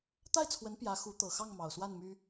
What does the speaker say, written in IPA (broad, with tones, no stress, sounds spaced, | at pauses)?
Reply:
t̪ a˥˩ ɪ̯ t͡sʰ w ə˧˥ n p j ä˧˥ x u˧˥ t̪ ɤ˨˩ x ɑ˥˩ ŋ m ɑ˨˩ ʊ̯ s w a˥˩ n m y˥